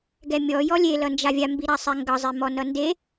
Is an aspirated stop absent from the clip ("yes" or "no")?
yes